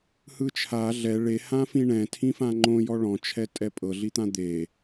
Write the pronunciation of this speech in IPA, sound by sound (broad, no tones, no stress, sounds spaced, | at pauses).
h ɯ t͡ʃʰ a ɮ ɛ ɭ e h ã f ĩ ɳ ɛ̃ tʰ ĩ f ã ŋ͡ǃ õ j ɔ ɭ ɔ̃ t͡ʃʰ ɛ tʼ ɛ pʼ ɤ ɮ i t̪ ã d̪ e